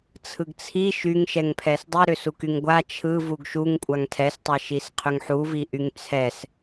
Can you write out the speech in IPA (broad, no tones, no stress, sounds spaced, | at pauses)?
t͡sʰ ɯ ɡ t͡sʰ i ʃ y ŋ ʃ ɛ ŋ pʰ ɛ s dˤ i ɾ ʏ s u k y ŋ ɡʷ a t͡ʃʰ ɯ v u ɡ ʃ u ŋ kʷʼ a ŋ tʰ ɛ s tˤ ɛ ʃ i s qʰ ʏ ŋ ħ u v i ʔ y ŋ t͡sʰ ɛ s